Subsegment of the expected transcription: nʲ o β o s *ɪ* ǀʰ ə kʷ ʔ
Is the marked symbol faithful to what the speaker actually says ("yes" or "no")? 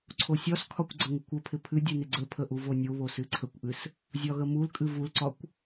no